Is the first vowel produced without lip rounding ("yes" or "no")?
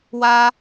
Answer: yes